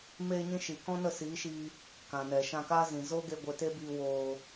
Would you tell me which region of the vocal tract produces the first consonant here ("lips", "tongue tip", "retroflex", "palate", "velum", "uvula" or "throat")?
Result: lips